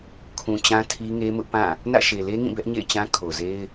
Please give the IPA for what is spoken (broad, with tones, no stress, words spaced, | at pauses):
kʰũ˨t͡ɕã˦ tʰi˦ŋe˦mʊ˦ʔ pã˦˨ | nä̰˦˨ʃe˨le˦ŋĩ˦˨ bɛ˦ʔɲḛ˦˨ɪ̯t͡ɕã˦ kʰo˨ze˦ɪ̯